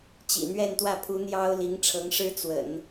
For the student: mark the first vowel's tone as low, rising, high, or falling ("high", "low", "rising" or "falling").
low